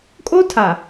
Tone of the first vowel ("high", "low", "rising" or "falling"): high